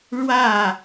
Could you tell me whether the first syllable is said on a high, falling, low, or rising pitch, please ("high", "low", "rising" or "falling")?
falling